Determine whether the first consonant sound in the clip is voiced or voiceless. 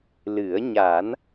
voiced